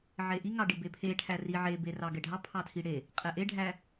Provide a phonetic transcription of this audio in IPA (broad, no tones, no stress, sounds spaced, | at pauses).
ʕ e ʔ i ŋ ɑ ɖ i b e pʰ e ʈʰ æ r i ʕ e b e r ɑ ɡ ɛ ɖʱ ɑ pʰ ɑ tʰ i ɽ e | qʼ ɛ ʔ e ɖʱ æ